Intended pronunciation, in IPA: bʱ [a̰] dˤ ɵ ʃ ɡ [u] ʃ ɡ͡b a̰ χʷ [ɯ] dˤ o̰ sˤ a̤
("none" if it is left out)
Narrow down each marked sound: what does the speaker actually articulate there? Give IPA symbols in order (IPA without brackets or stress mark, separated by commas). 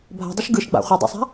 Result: a̤, ɯ, ɯ